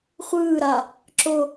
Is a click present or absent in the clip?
present